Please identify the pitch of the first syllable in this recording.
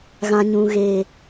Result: low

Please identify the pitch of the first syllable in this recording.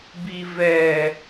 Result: low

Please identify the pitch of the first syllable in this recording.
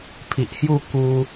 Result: low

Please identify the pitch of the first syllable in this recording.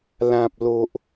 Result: low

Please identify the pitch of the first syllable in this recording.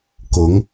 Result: rising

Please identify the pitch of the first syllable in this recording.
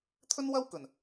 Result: high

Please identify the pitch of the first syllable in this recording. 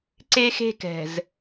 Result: high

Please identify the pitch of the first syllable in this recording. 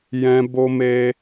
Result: high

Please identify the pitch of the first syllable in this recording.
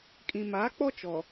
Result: low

